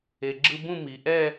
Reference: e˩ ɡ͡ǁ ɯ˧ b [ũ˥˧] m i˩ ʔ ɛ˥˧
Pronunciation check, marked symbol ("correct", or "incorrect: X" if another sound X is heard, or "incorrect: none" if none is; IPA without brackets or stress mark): correct